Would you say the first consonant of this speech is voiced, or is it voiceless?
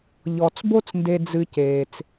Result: voiced